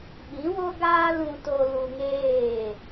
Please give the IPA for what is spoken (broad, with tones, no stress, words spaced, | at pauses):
ɓĩ˨˦wo˦ɡaː˦ lũ˧to˧ lu˧ŋeː˦˨